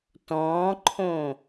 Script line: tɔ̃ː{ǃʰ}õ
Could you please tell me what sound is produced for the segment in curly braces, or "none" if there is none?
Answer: ǃʰ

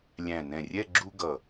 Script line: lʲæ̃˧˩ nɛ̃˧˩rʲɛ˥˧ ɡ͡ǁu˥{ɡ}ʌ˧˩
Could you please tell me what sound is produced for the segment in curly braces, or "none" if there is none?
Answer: ɡ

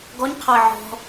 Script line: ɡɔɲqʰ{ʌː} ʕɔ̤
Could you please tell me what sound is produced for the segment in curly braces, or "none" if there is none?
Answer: ʌː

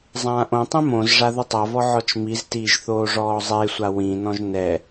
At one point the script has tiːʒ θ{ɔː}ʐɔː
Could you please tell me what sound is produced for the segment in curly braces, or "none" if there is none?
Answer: oː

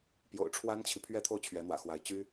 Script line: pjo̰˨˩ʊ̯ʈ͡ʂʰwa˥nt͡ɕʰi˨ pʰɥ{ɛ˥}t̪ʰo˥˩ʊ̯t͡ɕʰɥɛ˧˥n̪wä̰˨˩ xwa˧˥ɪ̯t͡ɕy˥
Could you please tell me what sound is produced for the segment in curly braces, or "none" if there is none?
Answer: ɛ˥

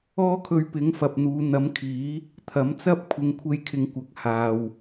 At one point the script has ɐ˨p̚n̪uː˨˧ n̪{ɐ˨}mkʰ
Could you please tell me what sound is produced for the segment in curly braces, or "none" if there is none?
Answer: ɐ˨˥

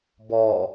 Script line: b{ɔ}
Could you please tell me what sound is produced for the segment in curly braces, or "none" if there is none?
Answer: ɔ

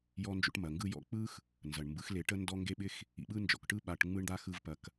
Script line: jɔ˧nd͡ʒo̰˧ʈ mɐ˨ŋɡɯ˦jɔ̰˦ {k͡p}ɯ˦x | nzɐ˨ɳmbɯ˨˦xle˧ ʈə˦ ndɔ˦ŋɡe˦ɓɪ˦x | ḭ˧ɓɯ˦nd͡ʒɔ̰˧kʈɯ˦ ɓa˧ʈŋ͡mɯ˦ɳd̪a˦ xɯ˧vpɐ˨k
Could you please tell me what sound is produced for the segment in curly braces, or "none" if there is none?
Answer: k͡p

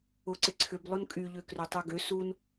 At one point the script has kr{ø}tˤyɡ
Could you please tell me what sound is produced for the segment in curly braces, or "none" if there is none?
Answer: ø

